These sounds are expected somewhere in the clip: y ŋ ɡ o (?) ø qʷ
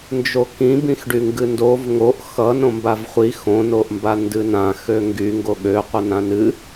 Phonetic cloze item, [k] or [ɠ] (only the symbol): ɠ